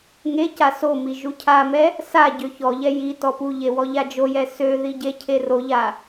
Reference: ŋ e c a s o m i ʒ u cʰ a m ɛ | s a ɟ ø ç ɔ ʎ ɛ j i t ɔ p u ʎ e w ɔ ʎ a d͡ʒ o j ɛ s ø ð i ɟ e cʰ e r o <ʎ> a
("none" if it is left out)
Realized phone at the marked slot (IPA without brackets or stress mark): ʎ